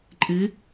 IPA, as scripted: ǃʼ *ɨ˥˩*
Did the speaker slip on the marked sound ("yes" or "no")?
yes